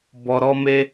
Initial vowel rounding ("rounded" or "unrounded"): rounded